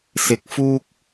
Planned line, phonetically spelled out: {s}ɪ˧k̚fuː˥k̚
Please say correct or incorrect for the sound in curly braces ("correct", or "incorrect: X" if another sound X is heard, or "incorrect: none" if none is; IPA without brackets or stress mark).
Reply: correct